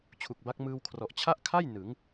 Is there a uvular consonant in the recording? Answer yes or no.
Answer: no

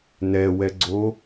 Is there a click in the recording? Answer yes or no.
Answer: yes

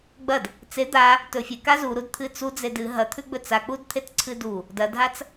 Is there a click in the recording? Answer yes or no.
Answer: yes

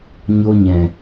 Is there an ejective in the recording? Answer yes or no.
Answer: no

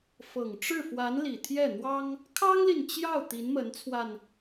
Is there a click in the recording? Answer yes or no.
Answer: no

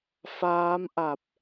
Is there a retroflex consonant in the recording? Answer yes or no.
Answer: no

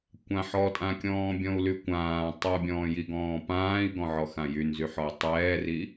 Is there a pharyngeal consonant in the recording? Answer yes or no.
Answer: yes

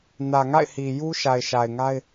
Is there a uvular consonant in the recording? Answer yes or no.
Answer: no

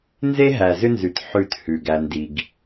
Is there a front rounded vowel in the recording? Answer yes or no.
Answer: yes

